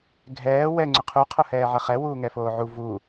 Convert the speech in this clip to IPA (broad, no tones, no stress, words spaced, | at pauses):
ɡʱɛː wɛ ŋ͡ǀʏqʰu qʰohɛːʕɐχɛ wuːŋɛfoːʕu vu